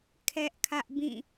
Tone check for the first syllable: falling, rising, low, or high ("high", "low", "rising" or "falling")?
high